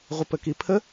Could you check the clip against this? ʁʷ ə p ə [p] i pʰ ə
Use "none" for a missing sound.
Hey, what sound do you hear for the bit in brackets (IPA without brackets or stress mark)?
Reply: k